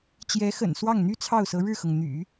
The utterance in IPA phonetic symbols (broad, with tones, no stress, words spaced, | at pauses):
t͡ɕjɛ˧˥xə̰˨˩n swɑ˥˩ŋn̪y˥t͡sʰɑ˥˩ʊ̯sɤ˧˥ ɻɻ̩˥˩xɤ˩ŋ n̪y̰˨˩˦